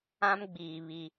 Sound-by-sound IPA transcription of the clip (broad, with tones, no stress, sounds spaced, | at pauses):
ã˦ m ɡ͡b iː˨ β i˦